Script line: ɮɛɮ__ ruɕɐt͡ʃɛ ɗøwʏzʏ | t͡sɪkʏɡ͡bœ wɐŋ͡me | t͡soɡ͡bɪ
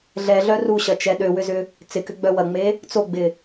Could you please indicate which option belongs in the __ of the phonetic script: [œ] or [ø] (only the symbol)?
œ